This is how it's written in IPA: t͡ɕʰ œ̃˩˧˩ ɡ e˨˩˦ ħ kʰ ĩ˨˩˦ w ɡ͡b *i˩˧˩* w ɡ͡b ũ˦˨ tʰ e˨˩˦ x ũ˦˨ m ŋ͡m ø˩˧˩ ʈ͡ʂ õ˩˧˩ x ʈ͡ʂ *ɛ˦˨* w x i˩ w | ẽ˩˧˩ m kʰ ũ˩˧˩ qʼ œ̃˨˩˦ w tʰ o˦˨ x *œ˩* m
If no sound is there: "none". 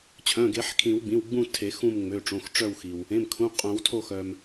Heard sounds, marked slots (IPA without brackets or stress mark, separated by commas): ĩ˩˧˩, œ˦˨, œ˩